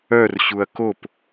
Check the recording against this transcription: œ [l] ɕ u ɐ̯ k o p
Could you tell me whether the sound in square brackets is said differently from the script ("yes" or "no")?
yes